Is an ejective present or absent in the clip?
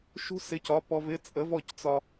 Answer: present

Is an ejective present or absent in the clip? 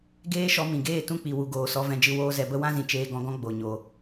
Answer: absent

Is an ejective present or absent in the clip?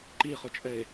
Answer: present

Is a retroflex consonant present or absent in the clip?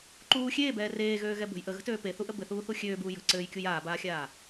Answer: absent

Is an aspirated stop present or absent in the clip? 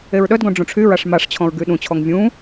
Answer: present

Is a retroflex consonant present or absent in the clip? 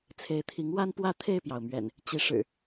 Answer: present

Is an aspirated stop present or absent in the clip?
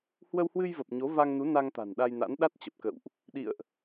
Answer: absent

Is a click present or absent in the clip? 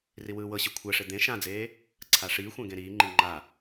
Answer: present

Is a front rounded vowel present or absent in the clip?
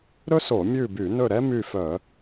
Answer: present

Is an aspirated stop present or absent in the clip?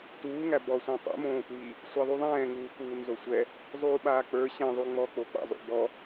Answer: absent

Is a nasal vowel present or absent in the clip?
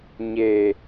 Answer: absent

